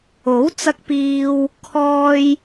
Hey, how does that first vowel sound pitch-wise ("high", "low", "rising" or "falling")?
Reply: rising